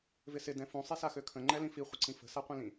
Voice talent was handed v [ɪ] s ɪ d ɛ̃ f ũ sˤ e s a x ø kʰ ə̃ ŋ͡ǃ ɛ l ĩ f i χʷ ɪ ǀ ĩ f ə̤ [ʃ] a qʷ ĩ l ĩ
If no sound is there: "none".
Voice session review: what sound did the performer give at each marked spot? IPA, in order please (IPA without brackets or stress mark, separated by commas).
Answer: ɪ, s